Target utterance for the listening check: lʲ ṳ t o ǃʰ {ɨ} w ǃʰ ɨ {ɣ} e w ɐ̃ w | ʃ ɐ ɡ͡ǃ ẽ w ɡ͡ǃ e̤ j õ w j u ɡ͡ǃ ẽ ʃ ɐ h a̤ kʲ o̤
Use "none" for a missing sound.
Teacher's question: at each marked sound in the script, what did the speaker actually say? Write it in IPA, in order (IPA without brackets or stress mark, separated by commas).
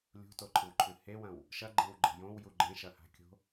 ɨ, h